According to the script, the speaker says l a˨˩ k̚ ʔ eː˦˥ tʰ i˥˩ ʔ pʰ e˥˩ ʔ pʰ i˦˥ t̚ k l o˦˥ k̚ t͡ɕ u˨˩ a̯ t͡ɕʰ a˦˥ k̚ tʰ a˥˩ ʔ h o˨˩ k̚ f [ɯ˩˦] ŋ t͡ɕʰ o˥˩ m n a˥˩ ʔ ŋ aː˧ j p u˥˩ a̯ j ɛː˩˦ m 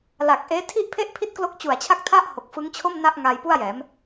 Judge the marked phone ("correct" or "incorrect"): incorrect